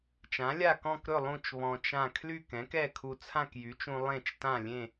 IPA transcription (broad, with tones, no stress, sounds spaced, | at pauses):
t͡ʃ ã˩˥ lʲ a˥˨ k ɔ̃˥˨ k ɾ ɵ˥˨ lˠ ũ˥˨ t͡ʃ β ɔ̃˧ t͡ʃ ã˥˨ kʰ l y˥˨ k ɛ̃˩˥ k ɛ˥˨ kʰ u˧ t͡sʰ ã˥˨ k j y˩˥ t͡ʃ ũ˧ lˠ ẽ˥˨ t͡ʃ t ã˥˨ lʲ ẽ˥˨